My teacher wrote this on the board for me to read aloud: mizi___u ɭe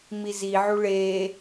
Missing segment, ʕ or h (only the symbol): ʕ